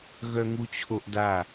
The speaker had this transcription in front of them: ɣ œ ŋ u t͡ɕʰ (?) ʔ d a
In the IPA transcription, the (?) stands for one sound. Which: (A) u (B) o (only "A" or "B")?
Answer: B